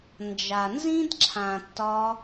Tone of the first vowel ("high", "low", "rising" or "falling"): low